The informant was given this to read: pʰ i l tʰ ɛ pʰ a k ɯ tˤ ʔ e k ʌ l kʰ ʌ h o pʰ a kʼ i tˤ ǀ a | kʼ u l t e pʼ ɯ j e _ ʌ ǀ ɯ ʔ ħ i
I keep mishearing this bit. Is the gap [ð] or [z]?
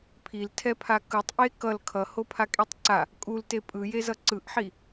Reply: z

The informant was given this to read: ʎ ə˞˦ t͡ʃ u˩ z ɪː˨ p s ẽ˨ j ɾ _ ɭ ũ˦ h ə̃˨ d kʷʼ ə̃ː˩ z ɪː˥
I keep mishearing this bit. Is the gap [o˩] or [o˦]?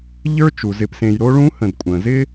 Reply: o˦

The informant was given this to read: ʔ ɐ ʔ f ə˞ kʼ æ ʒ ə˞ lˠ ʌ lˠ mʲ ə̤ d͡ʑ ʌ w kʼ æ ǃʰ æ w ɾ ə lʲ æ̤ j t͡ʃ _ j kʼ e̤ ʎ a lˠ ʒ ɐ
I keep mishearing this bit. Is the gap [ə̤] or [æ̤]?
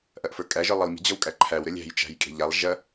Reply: æ̤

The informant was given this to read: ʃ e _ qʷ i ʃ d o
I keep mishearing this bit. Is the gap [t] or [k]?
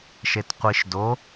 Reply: t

